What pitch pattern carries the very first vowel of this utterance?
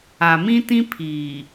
low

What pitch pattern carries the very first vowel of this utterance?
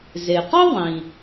low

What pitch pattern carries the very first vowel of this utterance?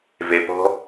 low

